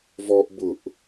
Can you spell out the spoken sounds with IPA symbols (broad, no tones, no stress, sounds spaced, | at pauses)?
v ɔ ʔ b ʊ ʔ